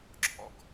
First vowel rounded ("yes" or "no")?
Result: yes